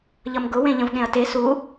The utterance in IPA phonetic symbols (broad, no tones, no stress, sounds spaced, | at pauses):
ʎ ʌ m ɡ ʊ w ẽ ʎ ə̃ v ɠ ẽ ɐ̯ t e s u